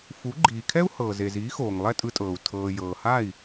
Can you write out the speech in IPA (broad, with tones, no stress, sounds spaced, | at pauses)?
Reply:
f u˩˥ ɡ͡ǃ iː˩ kʰ ɛ˥ u̯ h ɤː˩ z e˩ z iː˩˥ x oː˩ ŋ lˠ ɛ˥˩ tʼ ɯ˧ tʼ ɤː˩ u̯ tʰ ɤː˩ j ɤː˩ h a˥˩ i̯